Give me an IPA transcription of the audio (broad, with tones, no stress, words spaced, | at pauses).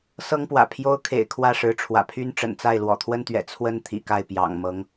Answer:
sɤ˥ŋpwä̰˨˩pʰjo˥ʊ̯kʰḛ˨˩ɪ̯ kʰwä˥˩ʂɻ̩˧˥ʈ͡ʂʰwä̰˨˩ pʰy˥n ʈ͡ʂə̰˨˩nt͡sa˥˩ɪ̯ lwɔ̰˨˩t̪ʰwə˥nt̪ɥɛ̰˨˩ t͡sʰwə˥n t̪ʰḭ˨˩ka˥˩ɪ̯pjɑ̰˨˩ŋmɤ˧˥ŋ